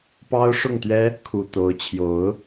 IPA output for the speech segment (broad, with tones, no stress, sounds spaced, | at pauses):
p ɑ˦ ʊ̯ ʂ ʊ˥˨ ŋ t̪ ɥ ɛ˦ | kʰ u˨˩ t̪ o˨˦ ʊ̯ t͡ɕʰ j o˨˦ ʊ̯